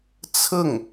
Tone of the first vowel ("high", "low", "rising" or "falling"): falling